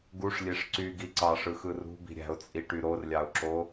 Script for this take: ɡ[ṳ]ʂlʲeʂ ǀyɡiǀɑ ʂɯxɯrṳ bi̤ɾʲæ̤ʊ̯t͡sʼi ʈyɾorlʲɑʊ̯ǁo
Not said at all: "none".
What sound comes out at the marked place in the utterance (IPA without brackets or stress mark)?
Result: u